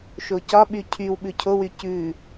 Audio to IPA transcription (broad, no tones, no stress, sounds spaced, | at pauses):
ʃ o c ɒ ɓ y cʰ y w ɓ ʉ cʰ o w y c ʉ